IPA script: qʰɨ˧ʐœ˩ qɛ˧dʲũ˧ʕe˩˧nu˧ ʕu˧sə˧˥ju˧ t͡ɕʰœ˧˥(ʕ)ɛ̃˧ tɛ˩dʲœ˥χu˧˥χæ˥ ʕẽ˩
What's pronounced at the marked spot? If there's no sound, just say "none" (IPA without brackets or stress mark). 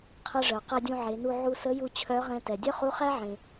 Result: ʁ